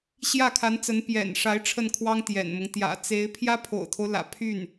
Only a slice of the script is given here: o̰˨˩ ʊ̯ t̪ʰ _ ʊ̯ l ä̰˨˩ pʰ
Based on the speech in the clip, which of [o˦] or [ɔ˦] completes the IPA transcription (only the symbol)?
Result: o˦